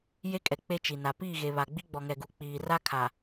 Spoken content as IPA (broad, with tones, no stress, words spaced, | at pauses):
je˦kʼɛ˨ k͡pe˦t͡ʃi˨ na˨piː˦˨ɣe˨βa˨ ɡ͡bi˦ɡ͡bɔ˨ŋɛ˨ɡu˨ k͡piː˨ ra˦kʰa˨